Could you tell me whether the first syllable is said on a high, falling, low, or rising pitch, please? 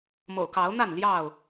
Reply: low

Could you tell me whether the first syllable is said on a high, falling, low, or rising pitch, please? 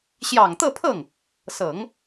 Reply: low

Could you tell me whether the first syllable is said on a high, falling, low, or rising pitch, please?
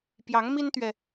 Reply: rising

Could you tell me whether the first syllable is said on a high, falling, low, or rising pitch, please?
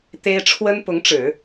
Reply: high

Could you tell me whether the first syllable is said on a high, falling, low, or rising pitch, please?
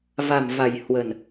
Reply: low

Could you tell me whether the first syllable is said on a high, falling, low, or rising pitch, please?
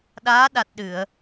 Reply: rising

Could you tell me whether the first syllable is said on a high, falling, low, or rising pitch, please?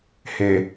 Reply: low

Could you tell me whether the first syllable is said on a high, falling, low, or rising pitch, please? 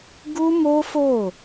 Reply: high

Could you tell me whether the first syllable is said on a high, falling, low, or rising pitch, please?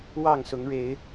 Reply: falling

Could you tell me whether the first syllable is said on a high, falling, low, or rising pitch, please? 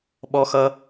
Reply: high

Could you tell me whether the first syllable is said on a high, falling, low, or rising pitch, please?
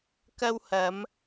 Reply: high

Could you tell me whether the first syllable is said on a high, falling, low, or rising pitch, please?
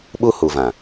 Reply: high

